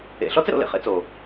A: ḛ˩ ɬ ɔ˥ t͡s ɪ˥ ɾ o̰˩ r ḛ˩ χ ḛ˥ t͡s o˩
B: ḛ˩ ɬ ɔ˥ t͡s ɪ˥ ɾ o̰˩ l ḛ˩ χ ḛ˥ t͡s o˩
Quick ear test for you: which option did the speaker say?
B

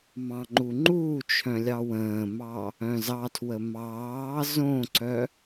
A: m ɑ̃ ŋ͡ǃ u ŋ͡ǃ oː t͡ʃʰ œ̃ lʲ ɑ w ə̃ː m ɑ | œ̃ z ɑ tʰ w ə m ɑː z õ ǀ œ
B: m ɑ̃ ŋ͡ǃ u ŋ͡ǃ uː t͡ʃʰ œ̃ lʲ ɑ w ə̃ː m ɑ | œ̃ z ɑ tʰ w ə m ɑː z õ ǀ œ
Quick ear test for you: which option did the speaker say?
B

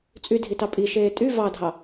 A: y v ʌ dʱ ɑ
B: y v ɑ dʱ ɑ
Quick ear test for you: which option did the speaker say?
B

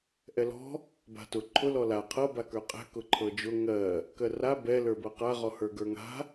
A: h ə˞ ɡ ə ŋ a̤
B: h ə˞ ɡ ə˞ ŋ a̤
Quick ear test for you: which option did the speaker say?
B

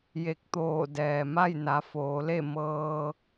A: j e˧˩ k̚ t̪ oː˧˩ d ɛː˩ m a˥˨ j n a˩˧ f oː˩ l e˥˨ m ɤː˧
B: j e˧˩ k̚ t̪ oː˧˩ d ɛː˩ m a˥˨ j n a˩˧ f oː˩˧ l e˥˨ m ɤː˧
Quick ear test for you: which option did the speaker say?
B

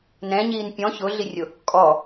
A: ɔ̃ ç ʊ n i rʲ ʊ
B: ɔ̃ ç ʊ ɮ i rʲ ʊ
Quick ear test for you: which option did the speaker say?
B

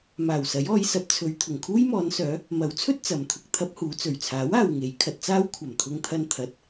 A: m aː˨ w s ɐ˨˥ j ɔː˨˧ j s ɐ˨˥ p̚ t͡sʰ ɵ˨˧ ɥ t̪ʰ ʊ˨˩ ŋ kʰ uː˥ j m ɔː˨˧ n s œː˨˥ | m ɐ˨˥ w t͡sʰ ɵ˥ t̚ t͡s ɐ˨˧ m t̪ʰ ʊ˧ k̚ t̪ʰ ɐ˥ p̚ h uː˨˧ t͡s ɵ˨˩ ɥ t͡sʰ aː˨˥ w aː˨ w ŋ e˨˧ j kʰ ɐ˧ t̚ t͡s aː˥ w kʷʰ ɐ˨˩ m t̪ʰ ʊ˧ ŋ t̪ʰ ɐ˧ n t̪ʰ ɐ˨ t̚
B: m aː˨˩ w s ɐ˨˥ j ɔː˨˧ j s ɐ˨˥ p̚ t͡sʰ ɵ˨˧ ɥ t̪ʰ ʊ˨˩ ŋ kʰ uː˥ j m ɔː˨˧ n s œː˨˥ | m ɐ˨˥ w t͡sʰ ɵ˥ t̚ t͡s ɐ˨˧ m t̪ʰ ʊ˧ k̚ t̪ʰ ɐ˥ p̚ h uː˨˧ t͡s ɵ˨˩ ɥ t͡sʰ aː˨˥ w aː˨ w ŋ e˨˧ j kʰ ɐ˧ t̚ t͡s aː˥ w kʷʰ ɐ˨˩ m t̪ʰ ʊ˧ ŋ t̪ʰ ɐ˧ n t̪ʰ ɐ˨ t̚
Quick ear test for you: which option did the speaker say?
B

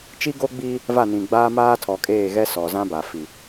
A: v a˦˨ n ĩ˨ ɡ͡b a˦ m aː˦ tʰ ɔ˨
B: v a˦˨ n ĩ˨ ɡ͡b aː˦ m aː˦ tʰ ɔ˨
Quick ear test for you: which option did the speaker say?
B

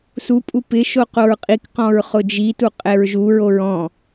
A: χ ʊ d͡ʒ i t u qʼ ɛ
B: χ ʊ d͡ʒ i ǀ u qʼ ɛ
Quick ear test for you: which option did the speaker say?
A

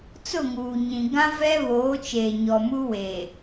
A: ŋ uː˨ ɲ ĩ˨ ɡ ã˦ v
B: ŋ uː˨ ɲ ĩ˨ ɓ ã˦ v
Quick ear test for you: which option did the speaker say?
A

